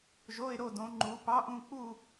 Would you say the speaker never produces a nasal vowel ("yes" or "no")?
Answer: no